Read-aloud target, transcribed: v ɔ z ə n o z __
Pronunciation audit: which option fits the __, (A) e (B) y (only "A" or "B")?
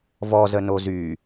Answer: B